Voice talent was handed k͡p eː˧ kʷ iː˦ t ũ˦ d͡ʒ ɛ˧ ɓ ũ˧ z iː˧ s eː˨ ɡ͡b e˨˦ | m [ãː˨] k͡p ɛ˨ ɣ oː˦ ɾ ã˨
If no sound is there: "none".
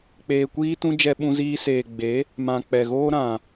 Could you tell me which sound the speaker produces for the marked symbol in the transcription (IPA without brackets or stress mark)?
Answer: ã˨